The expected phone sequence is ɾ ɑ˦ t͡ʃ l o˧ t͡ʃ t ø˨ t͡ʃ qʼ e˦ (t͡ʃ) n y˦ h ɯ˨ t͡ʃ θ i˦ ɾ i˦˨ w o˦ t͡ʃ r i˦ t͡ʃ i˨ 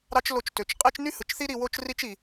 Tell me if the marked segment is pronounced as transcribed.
yes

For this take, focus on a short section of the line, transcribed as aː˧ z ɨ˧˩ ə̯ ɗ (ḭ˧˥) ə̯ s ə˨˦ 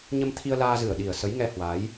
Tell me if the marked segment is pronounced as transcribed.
no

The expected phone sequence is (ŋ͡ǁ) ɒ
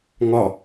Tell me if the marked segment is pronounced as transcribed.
no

